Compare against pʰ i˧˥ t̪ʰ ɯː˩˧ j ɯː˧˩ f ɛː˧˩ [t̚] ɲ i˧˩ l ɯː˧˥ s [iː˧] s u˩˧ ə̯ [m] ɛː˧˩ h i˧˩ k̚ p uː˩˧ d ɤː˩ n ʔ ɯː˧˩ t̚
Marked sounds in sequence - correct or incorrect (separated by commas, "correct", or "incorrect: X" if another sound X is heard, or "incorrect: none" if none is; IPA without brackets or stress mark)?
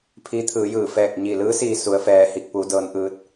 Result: incorrect: k̚, correct, incorrect: f